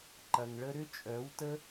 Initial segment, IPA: ǃ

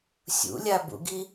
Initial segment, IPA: sʲ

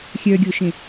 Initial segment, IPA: xʲ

